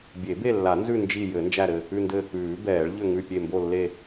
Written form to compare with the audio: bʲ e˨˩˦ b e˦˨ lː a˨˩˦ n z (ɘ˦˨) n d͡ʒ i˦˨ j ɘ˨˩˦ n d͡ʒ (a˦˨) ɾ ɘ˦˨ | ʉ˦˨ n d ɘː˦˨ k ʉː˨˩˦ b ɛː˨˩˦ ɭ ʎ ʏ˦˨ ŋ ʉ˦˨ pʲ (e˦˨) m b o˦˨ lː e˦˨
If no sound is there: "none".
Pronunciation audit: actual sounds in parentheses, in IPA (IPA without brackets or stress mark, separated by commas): ʉ˦˨, æ˦˨, e˦˨